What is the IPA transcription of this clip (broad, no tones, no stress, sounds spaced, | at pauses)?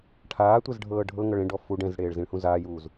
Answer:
ʈʰ aː tʷ ɛ z ɖʱ ɤː ɖʱ ɤ ŋ ɤ ɭ ẽ ɖ ɔ f u ɖ ɛ̃ z ɽ eː ɭ z ĩ ɭ h ũ z aː j uː z